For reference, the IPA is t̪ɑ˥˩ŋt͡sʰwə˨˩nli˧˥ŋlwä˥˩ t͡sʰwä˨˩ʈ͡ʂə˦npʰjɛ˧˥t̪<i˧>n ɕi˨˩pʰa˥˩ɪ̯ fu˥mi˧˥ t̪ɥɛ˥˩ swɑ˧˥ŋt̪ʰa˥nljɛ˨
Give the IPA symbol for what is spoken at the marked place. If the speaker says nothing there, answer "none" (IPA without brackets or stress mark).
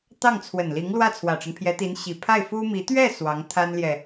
i˧˥